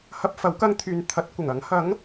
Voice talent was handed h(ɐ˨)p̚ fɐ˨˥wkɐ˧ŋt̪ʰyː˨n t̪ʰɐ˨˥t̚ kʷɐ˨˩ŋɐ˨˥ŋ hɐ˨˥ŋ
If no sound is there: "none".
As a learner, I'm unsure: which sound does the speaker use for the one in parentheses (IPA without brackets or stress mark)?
ɐ˧